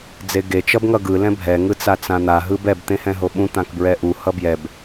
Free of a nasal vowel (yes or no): no